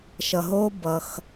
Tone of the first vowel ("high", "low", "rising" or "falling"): low